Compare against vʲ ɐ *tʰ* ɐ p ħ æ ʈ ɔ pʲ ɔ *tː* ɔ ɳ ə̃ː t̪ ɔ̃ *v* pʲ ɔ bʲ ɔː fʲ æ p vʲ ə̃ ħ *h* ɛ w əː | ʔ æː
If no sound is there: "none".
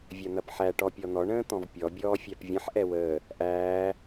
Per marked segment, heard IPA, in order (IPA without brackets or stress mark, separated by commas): n̪, n̪, v, ʔ